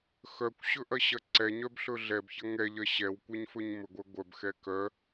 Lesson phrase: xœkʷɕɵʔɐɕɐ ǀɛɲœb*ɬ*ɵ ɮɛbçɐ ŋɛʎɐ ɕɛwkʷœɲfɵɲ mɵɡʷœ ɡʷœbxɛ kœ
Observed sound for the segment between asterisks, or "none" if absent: ɬ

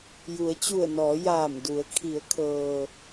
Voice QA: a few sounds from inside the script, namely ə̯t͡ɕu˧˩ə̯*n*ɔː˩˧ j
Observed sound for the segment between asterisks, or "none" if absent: n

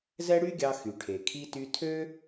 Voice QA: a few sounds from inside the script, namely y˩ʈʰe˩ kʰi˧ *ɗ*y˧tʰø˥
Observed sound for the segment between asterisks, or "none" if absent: t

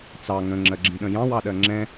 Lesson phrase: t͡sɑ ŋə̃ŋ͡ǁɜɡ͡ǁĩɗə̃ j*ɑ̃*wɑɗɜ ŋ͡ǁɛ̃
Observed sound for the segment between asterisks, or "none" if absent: ɑ̃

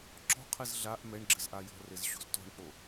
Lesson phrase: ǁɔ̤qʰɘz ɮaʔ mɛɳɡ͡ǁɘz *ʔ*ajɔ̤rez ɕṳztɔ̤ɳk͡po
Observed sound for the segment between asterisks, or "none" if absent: ʔ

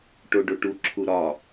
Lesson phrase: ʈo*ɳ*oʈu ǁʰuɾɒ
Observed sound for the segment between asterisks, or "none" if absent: ɖ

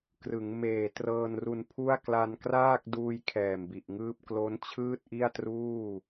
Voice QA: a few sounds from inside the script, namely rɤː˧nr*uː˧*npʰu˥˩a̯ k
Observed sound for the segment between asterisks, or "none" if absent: u˧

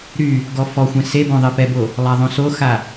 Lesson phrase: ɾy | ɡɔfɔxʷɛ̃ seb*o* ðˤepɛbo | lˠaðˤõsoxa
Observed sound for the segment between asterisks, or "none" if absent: õ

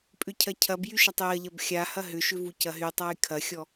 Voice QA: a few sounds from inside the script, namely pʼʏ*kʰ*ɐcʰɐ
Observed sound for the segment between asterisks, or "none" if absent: cʰ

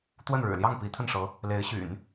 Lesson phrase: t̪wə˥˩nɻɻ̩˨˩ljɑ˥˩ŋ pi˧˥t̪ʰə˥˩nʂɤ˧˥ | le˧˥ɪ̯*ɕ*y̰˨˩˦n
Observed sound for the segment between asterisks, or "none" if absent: ɕ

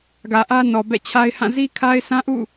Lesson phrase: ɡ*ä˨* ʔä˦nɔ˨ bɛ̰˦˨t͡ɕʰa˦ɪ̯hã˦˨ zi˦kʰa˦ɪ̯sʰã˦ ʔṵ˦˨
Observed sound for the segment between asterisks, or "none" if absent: ä˨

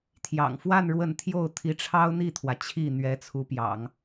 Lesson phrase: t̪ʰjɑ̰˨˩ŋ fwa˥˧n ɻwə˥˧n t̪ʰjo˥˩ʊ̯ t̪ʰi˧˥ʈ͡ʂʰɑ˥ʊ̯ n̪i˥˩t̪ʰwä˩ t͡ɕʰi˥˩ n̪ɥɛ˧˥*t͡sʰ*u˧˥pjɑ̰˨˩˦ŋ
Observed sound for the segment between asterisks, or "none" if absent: t͡sʰ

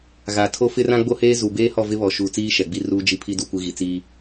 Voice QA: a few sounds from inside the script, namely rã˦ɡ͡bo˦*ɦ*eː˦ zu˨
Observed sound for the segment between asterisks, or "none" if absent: h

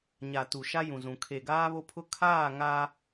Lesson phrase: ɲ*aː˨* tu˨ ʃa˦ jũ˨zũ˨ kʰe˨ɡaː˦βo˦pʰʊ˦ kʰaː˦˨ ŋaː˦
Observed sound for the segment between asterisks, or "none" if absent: a˨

